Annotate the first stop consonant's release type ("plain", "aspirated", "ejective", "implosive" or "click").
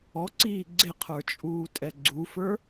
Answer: click